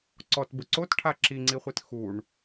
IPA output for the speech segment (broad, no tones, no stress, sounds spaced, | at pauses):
ǀ ɔ t b ʊ ǀ o t ʈʰ a ǁ i ŋ͡ǀ i χʷ i t x u ɳ